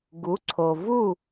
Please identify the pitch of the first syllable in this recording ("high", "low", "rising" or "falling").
rising